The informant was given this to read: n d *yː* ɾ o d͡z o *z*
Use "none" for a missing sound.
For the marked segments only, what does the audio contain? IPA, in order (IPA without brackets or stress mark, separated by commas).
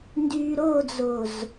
yː, z